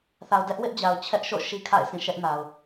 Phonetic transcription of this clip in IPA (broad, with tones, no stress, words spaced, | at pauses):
θa˨ʊ̯dɛ˦ʔ wɪ˦ʔd͡ʑa˨ʊ̯t͡ɕʰɛ˦ʔʃo̰˦˨ ʃi˦kʰa̰˦˨ɪ̯sĩ˦˨ ʃɛ˦ʔna˨ʊ̯